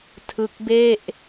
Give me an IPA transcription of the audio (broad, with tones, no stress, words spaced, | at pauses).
tʰɯ˦˥k̚be˥˩ʔ